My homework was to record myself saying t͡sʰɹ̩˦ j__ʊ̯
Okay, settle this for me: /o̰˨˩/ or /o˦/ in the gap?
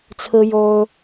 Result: o˦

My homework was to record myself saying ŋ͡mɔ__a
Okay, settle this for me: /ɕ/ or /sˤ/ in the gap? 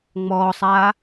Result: sˤ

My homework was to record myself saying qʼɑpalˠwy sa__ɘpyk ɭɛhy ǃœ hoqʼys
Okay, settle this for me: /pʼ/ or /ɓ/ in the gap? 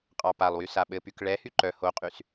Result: ɓ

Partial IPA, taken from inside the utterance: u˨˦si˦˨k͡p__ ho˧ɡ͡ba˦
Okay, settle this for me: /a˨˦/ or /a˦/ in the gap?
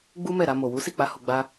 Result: a˨˦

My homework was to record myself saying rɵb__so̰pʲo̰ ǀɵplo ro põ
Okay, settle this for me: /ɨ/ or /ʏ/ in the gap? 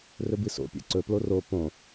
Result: ɨ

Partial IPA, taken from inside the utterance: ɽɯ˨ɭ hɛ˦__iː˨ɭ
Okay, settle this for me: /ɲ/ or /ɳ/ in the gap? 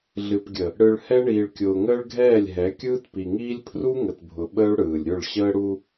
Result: ɳ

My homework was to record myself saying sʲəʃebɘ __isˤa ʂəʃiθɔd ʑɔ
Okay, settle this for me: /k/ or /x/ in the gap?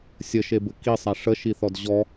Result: k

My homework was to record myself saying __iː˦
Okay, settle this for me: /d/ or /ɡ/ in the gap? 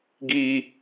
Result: ɡ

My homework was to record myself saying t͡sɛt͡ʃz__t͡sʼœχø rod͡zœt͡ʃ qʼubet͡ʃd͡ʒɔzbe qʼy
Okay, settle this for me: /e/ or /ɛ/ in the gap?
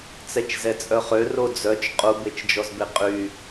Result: ɛ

